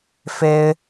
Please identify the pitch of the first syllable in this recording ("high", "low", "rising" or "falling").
high